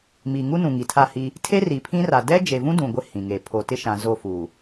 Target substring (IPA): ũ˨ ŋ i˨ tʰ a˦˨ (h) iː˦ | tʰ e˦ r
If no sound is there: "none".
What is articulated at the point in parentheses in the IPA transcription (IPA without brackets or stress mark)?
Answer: h